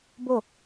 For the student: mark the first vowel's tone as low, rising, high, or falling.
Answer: falling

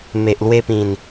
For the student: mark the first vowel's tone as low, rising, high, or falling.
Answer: low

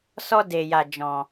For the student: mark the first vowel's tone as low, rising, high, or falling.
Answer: high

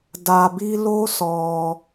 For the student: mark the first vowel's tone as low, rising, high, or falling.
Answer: low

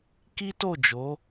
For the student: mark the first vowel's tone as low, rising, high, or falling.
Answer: high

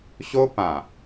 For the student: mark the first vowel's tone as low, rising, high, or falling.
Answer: high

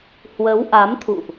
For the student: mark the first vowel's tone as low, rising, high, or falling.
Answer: rising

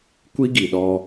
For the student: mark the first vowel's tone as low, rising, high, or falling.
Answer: high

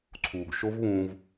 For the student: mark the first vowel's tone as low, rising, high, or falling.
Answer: low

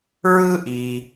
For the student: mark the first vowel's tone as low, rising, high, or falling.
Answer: high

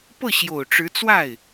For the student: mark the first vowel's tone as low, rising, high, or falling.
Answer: falling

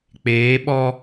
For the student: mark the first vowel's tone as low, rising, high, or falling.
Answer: rising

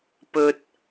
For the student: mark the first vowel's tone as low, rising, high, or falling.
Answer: low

